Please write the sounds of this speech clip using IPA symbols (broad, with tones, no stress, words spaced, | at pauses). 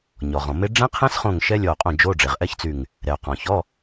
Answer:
ɲɔ˩ʁɔ̃˩me˦˥ ɖ͡ʐɛ̃˦˥qʰɛ̃˦˥sχõ˧˩ŋ ʃɛ˦˥lʲɔ˧˩o̯qʼõ˧˩ d͡ʒo˧˥˧ɖ͡ʐe˩ʁ ʔɛ˦˥çt͡sy˧˩ŋ | ɾɛ˩o̯qɔ̃˩çɔ˧˥˧